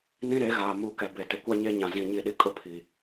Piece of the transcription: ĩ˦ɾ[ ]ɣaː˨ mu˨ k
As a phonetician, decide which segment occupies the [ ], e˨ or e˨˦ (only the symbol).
e˨˦